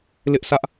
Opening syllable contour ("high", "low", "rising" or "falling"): high